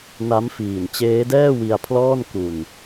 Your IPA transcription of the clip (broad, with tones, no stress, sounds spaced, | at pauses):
n a˦˥ m f iː˨˩ n t͡ɕ eː˦˥ d ɛː˥˩ w i˧ a̯ pʰ l ɔː˥˩ n k u˧ n